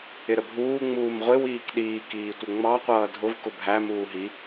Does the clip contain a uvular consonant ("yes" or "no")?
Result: yes